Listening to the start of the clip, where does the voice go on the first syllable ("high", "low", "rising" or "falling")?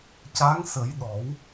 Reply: rising